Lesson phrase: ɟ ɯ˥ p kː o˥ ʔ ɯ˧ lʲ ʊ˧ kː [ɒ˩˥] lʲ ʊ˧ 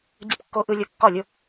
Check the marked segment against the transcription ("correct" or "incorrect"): incorrect